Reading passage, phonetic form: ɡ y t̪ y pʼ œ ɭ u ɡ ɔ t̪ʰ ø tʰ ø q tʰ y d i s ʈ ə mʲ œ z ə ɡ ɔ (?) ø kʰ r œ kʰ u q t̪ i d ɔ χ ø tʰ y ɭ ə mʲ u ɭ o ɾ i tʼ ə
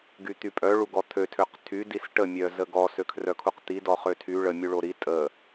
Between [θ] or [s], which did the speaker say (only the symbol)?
s